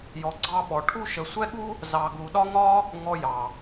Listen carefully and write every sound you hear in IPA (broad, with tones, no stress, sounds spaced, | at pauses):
j ɔ˧ ɡ͡ǀ ɑ˥ ɓ ɔ˧ ʈʰ u˥ ʃ ə˧ sʷ ɛ˥ ɠ u˥ | z ɑ˧ ɡ u˧ ɗ ɒ˥ ŋ ɒ˥ | ŋ ɔ˧ j ɑ˩